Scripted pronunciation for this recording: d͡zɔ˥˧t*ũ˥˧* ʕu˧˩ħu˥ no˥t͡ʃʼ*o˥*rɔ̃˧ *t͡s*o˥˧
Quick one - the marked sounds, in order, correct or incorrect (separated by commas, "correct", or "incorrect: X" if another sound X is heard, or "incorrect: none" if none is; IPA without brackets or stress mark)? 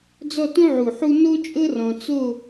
incorrect: ũ˥, incorrect: ɤ˥, correct